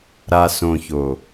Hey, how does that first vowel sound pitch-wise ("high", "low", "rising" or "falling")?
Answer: low